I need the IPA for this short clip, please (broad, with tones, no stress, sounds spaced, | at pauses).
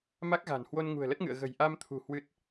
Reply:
m a˦˥ k̚ ɣ a̤˨˩ n h w o˧ n ŋ ṳ˨˩ ə̯ l ə˦˥ t̚ ŋ ɨ̰˧˨ ə̯ ɣ ə̤˨˩ j ʔ a˧ m t̪ʰ ṳ˨˩ h w ɨ˦˥ t̚